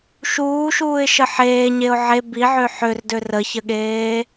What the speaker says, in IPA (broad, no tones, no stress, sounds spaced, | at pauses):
ʃ uː ʃ uː ɪ̯ ʃ ə ħ eː ɲ e ʊ̯ ʕ e b i ʕ ø ħ ø r d ø r ə ç ə ɠ eː